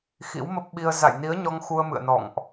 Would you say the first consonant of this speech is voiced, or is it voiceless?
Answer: voiceless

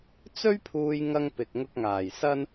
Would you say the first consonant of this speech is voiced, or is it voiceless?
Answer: voiceless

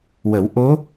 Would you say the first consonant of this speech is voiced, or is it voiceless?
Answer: voiced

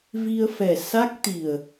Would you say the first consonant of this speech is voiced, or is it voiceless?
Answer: voiced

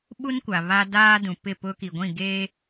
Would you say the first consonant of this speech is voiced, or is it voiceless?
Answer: voiced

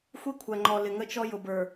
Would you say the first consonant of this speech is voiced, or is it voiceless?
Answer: voiceless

